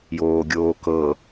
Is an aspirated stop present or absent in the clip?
absent